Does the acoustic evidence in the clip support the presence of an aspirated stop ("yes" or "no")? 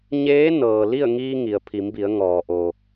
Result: yes